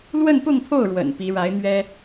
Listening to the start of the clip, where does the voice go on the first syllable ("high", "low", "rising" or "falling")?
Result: falling